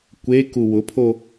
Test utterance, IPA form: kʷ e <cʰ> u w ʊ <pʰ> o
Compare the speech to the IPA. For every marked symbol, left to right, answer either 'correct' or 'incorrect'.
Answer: incorrect: k, correct

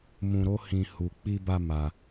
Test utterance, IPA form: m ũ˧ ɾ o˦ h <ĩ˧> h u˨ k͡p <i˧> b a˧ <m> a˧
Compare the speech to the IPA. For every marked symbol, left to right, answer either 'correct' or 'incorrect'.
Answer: correct, correct, correct

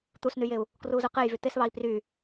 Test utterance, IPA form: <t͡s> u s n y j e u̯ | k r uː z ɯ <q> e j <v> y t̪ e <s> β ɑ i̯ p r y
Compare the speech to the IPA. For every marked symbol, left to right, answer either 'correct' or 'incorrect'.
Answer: incorrect: t̪, correct, correct, correct

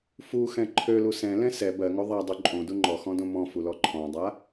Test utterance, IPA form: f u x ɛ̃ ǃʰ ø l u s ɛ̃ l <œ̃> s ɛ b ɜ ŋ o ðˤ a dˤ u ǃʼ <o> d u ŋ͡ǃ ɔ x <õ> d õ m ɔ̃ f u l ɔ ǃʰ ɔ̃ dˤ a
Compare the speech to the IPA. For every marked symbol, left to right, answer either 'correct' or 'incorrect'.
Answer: incorrect: ɛ̃, incorrect: õ, incorrect: ɔ̃

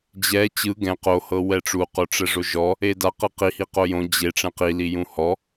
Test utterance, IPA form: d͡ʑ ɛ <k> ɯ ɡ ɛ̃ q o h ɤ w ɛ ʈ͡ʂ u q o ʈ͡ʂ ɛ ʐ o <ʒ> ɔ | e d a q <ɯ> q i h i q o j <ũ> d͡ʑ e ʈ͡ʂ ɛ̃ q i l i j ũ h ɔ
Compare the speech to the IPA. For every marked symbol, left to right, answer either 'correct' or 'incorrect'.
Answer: incorrect: t͡ɕ, correct, incorrect: ɤ, incorrect: õ

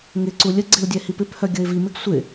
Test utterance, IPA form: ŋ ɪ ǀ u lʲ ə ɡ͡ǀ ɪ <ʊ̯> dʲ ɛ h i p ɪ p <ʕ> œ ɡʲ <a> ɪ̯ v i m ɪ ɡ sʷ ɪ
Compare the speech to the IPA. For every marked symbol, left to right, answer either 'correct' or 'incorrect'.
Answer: correct, incorrect: h, incorrect: ə

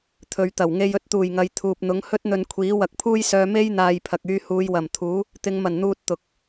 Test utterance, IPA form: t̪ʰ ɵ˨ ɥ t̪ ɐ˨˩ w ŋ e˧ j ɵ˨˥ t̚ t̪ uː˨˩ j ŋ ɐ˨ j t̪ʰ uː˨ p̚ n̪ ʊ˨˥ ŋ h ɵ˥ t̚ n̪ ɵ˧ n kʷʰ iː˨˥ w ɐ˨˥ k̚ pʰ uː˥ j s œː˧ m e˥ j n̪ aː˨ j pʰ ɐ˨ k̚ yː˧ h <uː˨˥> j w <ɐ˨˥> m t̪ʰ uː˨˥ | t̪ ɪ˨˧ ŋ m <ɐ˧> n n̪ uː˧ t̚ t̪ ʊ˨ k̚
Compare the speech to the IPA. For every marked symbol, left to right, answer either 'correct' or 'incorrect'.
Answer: incorrect: uː˨˧, incorrect: ɐ˨˩, incorrect: ɐ˨˩

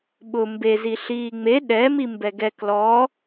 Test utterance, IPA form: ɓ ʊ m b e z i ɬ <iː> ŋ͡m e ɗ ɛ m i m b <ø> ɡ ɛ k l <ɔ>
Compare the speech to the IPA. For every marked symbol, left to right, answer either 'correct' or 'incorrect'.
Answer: correct, incorrect: ɛ, correct

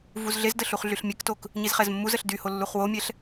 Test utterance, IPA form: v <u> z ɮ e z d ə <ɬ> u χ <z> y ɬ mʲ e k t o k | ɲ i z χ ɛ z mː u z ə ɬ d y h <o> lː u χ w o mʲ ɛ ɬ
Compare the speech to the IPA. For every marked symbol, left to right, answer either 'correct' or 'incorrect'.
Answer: correct, correct, incorrect: ɮ, correct

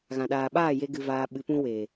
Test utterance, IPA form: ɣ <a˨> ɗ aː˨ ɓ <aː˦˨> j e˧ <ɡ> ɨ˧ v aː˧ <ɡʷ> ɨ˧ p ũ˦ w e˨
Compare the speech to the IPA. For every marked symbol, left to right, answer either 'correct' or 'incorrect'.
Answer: incorrect: ã˨, correct, correct, incorrect: ɓ

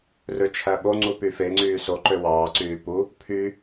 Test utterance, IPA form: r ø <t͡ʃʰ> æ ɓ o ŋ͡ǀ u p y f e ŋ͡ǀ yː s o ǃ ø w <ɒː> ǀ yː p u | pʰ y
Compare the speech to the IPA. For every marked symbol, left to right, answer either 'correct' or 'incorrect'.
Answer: correct, incorrect: ɑː

